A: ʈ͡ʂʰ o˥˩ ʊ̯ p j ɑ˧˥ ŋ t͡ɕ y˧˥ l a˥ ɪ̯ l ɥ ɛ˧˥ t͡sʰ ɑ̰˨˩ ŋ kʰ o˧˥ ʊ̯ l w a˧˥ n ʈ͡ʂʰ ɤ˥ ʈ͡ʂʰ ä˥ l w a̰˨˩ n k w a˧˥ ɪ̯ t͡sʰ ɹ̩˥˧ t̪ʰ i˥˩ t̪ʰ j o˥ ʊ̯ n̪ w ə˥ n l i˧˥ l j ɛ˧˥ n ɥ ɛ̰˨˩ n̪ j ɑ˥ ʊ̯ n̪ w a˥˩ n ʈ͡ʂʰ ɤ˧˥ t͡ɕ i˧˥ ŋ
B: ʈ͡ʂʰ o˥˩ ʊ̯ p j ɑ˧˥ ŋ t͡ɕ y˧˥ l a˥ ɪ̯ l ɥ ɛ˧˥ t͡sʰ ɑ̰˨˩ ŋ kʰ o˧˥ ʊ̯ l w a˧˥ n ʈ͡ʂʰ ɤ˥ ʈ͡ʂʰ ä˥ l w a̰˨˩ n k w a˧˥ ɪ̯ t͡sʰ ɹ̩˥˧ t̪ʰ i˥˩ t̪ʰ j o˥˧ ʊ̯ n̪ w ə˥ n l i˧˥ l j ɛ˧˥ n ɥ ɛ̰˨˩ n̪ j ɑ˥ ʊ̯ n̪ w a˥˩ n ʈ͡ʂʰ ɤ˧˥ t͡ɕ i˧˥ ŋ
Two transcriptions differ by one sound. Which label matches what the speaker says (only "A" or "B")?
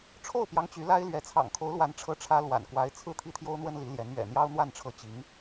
A